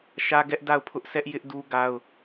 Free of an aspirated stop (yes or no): no